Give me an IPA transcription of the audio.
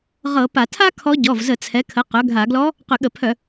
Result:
ʁɤ˧˩˧ pa˧˩˧tʰa˥ kʰɔ˧˥ ɟɔ˩˧˩vzə˧˩˧ t͡sʰɛ˩˥kʰə˩˥ qœ˩˥ ɡʱa˧˩˧ɡlɔ˧˥ | qʏ˧˩˧ɠə˧˩˧pʰœ˧˩˧

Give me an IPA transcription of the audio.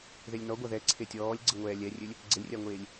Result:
ðelʲnɔɡʷa ðɛǀʰe tʲɔːlʲɡ͡ǀə ŋʷɛːlʲɛrʲølʲ | ɡ͡ǀəlʲrʲaŋʷeːlʲ

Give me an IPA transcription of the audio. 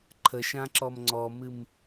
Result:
ǃʰəʃãǁɔm ŋ͡ǀɔmɨm

